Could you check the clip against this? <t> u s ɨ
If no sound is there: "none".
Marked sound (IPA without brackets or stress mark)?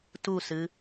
t